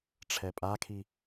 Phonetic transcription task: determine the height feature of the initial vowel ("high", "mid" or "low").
mid